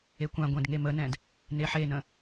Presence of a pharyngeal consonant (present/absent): present